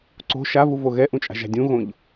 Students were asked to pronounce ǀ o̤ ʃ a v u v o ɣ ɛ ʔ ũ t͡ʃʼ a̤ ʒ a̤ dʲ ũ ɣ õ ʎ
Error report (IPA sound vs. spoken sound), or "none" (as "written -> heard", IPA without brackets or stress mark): none